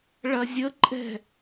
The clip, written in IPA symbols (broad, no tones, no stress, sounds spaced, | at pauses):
ɭ ɐ zʲ ə ǃʼ ɛ̤